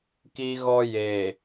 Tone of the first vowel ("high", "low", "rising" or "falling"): high